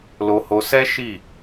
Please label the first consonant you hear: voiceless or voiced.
voiced